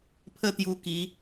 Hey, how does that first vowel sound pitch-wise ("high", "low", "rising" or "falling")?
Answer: high